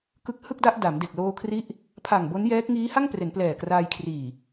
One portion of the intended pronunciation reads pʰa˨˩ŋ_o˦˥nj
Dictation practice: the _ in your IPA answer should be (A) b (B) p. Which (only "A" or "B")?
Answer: A